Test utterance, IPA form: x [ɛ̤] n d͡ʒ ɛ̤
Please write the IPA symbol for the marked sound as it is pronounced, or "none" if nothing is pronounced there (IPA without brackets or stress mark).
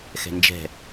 ɛ̤